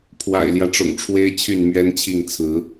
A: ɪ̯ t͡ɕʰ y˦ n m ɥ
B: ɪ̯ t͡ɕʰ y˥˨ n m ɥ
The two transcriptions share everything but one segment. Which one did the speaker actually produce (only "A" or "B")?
B